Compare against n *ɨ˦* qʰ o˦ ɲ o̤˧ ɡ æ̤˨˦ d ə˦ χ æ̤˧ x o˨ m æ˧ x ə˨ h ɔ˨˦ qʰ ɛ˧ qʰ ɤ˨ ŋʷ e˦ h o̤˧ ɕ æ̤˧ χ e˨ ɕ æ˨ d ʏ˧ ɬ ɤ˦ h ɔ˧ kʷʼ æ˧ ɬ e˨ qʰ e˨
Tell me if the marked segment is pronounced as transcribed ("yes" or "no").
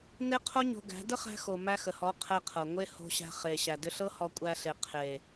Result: no